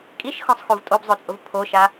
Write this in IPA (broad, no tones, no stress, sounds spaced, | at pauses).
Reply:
kʼ i ʃ x ɔ̃ sˤ x u v tʼ o b zˤ o t͡sʼ ʊ v pʰ o ʃ a